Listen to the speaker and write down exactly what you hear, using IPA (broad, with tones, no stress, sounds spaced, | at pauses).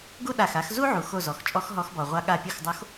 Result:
ɡ u˦ ɗ a˧˩ x a˨˦ x z u˦ ʕ u˩ x o˧˩ z ɔ˩ x t͡ʃʼ ɔ˨˦ x ɦ ɔ˨˦ x b ɔ˩ ʁʷ a˨˦ ɠ a˧˩ pʲ u˧˩ x dˤ o˨˦ x